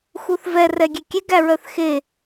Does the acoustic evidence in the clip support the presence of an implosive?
no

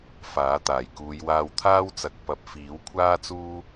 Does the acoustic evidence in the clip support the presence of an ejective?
no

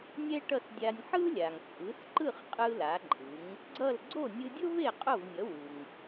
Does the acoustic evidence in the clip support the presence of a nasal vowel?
no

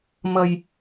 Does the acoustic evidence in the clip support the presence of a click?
no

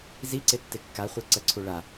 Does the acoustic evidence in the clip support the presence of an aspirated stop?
yes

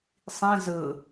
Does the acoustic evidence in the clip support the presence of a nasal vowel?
yes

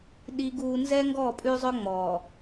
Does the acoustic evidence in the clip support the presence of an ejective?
yes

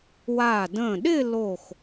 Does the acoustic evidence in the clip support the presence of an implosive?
yes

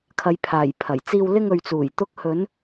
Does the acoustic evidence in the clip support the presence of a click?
no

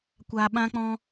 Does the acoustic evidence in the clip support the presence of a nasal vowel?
yes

